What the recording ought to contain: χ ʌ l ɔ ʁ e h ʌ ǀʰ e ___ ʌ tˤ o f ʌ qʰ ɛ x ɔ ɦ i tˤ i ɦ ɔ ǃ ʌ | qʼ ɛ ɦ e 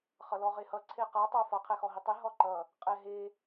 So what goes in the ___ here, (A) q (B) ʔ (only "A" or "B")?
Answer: A